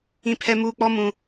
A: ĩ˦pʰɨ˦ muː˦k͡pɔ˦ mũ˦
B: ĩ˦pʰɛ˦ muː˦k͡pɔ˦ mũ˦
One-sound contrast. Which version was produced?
B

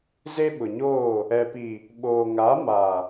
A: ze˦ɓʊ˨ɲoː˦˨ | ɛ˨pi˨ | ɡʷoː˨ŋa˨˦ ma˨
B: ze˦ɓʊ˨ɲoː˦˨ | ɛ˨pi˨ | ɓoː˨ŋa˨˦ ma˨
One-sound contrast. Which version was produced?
B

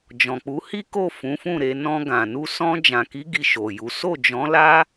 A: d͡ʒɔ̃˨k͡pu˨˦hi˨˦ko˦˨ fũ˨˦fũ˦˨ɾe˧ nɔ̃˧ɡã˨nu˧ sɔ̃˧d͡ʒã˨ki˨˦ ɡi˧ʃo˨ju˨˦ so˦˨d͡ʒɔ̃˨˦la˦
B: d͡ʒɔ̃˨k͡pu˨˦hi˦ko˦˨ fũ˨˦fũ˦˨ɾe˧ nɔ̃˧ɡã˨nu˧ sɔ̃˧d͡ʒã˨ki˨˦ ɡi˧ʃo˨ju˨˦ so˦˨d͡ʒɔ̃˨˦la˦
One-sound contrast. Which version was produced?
B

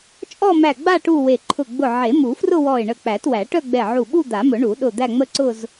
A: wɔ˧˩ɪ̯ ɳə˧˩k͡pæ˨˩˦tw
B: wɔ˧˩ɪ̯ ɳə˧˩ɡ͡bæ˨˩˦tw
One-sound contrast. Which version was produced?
A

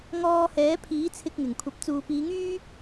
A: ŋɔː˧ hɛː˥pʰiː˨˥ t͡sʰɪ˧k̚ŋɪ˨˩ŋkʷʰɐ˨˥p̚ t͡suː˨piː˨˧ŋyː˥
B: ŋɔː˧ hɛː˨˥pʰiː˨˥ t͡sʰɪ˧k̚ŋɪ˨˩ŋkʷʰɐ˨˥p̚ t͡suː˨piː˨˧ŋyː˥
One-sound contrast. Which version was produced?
B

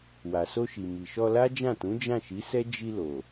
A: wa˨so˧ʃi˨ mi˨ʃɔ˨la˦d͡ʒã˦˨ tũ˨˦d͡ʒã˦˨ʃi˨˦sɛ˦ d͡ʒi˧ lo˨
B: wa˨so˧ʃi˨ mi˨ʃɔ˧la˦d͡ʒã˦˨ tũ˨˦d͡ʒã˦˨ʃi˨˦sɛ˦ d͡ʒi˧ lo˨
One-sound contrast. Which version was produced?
B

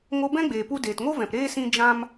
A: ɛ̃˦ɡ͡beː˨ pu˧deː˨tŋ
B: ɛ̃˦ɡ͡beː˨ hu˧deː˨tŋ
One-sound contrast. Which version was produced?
A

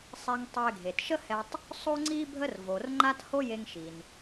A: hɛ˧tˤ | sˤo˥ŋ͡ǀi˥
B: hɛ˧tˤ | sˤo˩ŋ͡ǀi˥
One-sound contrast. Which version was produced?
A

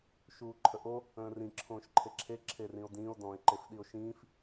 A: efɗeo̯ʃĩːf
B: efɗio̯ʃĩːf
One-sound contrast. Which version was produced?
B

